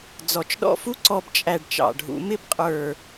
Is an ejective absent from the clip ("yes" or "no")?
no